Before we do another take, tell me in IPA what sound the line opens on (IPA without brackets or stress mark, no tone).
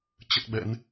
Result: t͡ɕ